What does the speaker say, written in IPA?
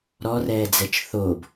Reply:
ɾ ɔ r ɛː d͡z ɛ t͡ʃ θ o b

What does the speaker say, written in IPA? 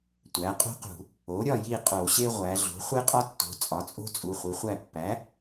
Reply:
tʷ æ˩˥ qʼ ṳ˥ q ṳ˧˩˧ | o˩˥ ɾʲ ɒ˥˨ j i˥˨ qʼ o˧˩˧ ɕ e˥ ʁʷ æ˩˧ ɮ o̤˩˥ χʷ e˥ qʼ ɒ˥ tː o̤˩˧˩ t͡sʼ ɒ˩˥ t͡sʼ o̤˥ t͡sʼ u˩˧˩ χʷ i˩˥ χʷ æ˥˨ pː æ˩˥

